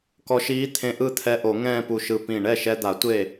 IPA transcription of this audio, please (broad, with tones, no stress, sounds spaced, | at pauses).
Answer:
k ɔ˧ ʃ iː˧˥ t̪ʰ ẽ˧ ʔ ɯ˥˧ t̪ʰ ɛ˧˥ ʔ o˨˩˦ ŋ ɛ̃ː˥˧ p u˧˩ ʃ ɯ˧˩ p ĩ˧˩ ɳ ɛ˥˩ ʃ ɛ˧ d̪ a˨˩˦ tʷ e˥˩